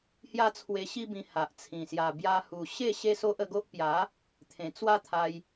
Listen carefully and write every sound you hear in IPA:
hja˦t͡sʰwe˧ɕi˦bĩ˧ ha˨ʔt͡sʰĩ˨˩ sja˨˩bja˧hu˨˩ ɕe˥˧ ɕe˦so˦ʔə˧ɡo˦ʔ pja˨˦ | t̪ʰẽ˨˩t͡swa˦t̪ʰa˧j

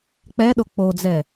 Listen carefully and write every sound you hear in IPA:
k͡pɛɗo k͡pod͡zɛ

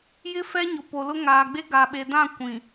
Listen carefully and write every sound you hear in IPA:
jɪ˦fɛ˦ɲʊ˨ po˨lʊ˦ŋaː˨ ɡ͡be˦ɡa˨ɓe˨dã˦˨ kʷĩ˨

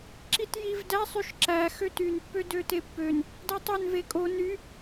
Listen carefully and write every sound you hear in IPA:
ǁitjivdæ sˤyʃǁæ xøtyn pːødøtepːøn | dætˤøn vekʼo ny

